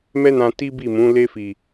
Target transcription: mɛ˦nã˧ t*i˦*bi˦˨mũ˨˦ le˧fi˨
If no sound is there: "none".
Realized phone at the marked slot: i˦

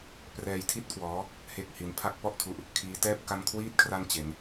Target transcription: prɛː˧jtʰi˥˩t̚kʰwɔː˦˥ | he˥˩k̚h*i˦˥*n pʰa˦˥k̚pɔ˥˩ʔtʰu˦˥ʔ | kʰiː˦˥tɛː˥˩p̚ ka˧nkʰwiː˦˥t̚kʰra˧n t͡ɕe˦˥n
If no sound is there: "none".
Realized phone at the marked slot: i˦˥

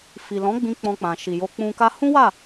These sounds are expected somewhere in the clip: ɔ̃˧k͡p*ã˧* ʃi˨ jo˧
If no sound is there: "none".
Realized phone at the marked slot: ã˨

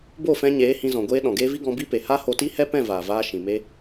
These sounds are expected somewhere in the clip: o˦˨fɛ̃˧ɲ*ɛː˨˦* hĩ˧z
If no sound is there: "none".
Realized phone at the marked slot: eː˨˦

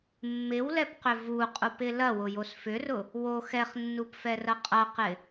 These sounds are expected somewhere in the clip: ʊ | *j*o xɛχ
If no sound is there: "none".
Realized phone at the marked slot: w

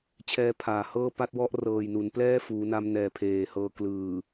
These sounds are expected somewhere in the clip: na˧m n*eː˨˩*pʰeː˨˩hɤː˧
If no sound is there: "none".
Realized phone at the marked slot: ɛː˨˩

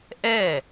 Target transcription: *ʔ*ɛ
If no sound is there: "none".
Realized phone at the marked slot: ʔ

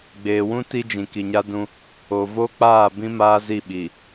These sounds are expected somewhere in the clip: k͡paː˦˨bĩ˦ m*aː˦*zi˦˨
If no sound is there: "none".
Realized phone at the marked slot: aː˦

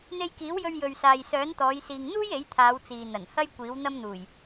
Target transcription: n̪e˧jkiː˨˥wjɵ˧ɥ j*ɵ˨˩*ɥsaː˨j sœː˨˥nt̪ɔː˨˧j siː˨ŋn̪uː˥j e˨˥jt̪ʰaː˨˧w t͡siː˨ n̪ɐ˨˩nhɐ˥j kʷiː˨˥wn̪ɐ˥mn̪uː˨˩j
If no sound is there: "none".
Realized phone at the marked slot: ɵ˨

